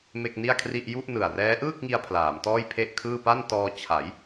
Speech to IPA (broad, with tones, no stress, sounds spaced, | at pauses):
m e˥˩ k̚ n i˥˩ a̯ kʰ r i˥˩ ʔ j u˥˩ ʔ n ɯ˨˩ a̯ r ɛː˦˥ ʔ ɯː˥˩ k̚ ŋ i˧ a̯ pʰ l aː˩˦ m t ɔː˥˩ j pʰ e˥˩ ʔ kʰ ɯː˥˩ p a˥˩ n t ɔː˧ t͡ɕʰ a˩˦ j